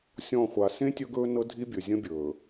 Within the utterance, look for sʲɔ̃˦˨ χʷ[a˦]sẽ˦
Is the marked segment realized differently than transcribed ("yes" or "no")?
yes